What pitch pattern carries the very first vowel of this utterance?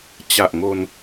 low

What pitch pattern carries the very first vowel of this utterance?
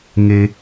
low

